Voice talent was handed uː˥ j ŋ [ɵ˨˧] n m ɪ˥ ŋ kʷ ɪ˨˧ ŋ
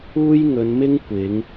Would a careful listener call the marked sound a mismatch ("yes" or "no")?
no